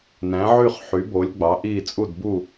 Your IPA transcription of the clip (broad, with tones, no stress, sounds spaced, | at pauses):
n æ̃˩˥ ʕ y˥˨ χ ħ y˩˥ b o˩˥ lʲ ɡ͡b ɑ˩˥ ʔ i˥˨ t͡sʼ u˥˨ d b u˥˨